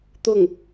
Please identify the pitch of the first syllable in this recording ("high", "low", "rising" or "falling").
falling